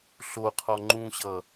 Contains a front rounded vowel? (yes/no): no